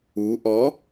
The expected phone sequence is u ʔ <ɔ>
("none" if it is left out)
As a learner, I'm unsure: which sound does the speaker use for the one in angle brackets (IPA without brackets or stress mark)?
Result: ɔ